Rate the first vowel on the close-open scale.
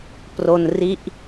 mid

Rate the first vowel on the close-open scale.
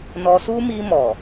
mid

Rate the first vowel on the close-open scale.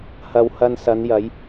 open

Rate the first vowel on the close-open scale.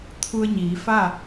close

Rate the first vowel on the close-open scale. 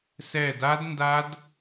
mid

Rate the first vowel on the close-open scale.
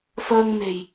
mid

